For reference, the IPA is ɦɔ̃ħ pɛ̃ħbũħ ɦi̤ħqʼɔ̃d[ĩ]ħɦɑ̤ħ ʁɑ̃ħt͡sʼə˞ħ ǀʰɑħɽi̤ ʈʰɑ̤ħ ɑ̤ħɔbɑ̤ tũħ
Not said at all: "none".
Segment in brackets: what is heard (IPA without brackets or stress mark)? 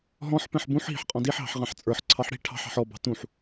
i